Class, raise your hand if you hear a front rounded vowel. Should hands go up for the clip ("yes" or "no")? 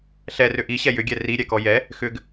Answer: yes